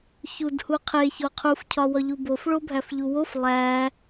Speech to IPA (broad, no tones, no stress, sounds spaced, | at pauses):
ç u d h u qʰ e ç o qʰ u f cʰ ɒ w ɒ ʎ u b o f ɭ o bʱ æ f ʎ u w o f lˠ æ